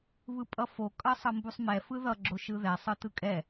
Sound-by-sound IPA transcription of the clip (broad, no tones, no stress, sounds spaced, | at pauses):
β ɯ pʼ ʌ f o kʼ ʌ sˤ ʌ m b u sˤ m ɛ f ɯ ð ʌ ɡ͡ǁ o ʃ ɯ ð ɛ sˤ ɯ t ɯ kʼ ɛ